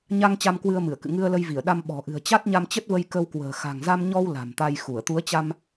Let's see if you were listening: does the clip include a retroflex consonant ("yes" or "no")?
no